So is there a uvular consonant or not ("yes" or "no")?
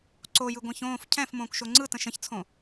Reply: no